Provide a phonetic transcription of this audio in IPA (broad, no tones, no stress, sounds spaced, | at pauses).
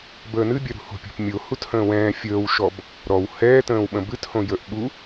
b əː n ɨ bʲ œ ɾ ṳ h o̤ pʲ o̤ p mʲ o h u t h ə̃ː w ɛ̃ː fʲ əː w ʃ ɔ b | ɾ ɔ w h ɛː t ə̃ː w ɓ ə̃ b ɨ t h õ j ə ʔ ɓ u